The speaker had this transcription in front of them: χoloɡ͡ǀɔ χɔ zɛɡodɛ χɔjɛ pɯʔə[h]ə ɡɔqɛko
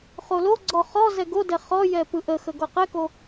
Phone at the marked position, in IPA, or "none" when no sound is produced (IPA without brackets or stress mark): x